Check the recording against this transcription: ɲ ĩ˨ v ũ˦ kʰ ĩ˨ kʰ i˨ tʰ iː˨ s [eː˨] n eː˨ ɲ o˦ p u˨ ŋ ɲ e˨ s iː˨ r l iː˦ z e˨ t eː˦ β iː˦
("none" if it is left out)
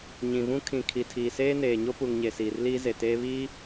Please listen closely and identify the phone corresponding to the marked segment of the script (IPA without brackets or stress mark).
eː˦